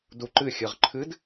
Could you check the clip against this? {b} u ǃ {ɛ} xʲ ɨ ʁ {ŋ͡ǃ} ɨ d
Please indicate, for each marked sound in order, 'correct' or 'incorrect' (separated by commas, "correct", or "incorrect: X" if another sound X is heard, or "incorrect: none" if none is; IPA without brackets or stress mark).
incorrect: d, incorrect: ɨ, incorrect: ǃʰ